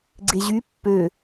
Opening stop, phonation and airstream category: click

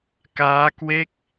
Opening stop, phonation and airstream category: plain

